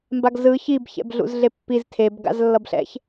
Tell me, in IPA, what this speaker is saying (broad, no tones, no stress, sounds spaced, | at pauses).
m b a ɡ z ɯ ç i b ç ɛ̰ b ɮ ṵ z ɮ e pː i z tʰ e b ɡ a̰ z lː ʌ b ɬ ɛ̰ ç